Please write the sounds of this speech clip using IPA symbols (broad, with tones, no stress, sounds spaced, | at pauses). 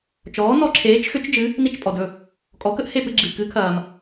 t͡ʃ ɔː˩˥ n ɔ˧ ǁʰ eː˩˥ t͡ʃ x ʏ˩˥ t͡ʃ d͡ʒ ɨ˩˥ | n i˥˩ t͡ʃ pʼ ɔ˩ d ɵ˥˩ | kʼ ɔ˩˥ k ə˥ ʔ h e˥˩ p ɨ˧ ɡ͡ǁ ɨ˩ k ɨ˩˥ kʰ ɐː˩ m